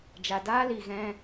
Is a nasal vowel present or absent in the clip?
present